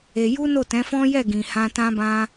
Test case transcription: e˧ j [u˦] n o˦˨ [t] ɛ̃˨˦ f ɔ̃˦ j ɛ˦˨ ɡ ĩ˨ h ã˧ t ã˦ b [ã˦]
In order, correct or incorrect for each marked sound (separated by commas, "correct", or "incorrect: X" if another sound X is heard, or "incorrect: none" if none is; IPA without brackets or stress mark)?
correct, correct, correct